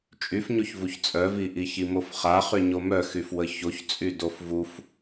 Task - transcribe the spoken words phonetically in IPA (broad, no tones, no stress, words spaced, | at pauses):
t͡ʃʼyfɲoçvuç t͡sʼœviʔiçi mofχaχy ɲomœxyf wəçoçt͡sʼy dofvuf